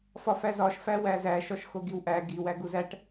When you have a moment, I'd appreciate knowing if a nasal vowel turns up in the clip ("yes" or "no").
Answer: no